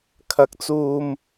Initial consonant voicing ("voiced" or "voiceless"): voiceless